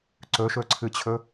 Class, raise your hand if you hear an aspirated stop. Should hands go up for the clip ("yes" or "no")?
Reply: yes